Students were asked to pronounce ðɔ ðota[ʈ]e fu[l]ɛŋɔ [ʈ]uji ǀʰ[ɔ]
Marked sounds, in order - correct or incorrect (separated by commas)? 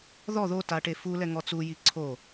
correct, correct, incorrect, incorrect